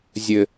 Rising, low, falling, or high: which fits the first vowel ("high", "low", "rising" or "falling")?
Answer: low